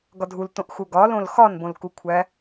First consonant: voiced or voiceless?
voiced